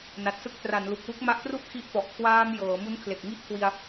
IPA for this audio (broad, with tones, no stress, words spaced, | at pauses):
na˨˩t̚sɯ˦˥k̚ tra˩˦n lu˨˩k̚wu˥˩k̚ ma˦˥ʔtru˥˩ʔ kʰi˦˥ʔfɔ˨˩ʔ kʰwaː˧m jɤː˩˦mu˦˥nkʰle˨˩k̚ŋi˥˩ʔ kʰwi˧a̯